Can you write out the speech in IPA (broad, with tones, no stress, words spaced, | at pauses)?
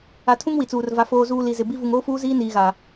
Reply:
a˨ tʰũ˦ŋwi˨t͡suː˨r va˨ foː˨zuː˨ li˨zɪ˨ bi˦ vu˨ŋoː˦fuː˦ziː˦ niː˨ɣa˨